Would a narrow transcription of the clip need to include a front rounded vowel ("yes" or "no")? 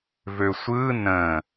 yes